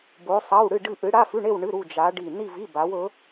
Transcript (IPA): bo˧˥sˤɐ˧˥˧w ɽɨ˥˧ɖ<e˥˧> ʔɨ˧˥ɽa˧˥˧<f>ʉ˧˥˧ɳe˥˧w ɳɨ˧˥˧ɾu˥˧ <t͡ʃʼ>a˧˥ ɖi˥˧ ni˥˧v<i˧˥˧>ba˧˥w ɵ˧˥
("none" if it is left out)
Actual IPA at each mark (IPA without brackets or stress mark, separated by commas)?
ɨ˥˧, f, d͡ʒ, i˧˥˧